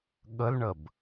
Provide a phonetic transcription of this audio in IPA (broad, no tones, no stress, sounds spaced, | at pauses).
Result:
ɠ ə l ɳ ə b